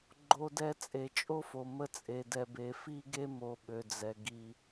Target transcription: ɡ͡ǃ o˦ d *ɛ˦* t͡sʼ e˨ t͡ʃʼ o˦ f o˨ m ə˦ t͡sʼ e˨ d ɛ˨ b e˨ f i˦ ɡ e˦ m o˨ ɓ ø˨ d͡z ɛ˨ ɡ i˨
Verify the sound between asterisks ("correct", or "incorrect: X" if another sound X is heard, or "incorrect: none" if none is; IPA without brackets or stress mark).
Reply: correct